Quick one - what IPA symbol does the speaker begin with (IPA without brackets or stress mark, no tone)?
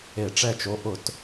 e